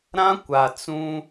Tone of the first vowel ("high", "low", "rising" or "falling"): high